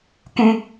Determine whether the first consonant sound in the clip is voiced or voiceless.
voiceless